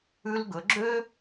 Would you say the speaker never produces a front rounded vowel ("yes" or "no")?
no